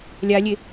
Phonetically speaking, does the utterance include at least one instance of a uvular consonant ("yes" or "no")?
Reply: no